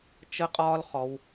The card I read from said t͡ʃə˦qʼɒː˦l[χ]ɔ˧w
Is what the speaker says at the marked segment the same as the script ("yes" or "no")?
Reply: yes